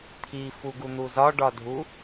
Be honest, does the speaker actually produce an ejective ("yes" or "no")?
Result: no